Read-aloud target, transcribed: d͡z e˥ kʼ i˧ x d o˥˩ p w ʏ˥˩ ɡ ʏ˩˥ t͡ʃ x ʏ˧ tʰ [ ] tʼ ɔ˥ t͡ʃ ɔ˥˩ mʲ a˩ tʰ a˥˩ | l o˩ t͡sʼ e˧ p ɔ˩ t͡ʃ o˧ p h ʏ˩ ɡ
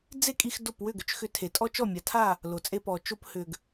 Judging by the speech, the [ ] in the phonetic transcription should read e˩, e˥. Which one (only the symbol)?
e˩